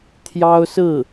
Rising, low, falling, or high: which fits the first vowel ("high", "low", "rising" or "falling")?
high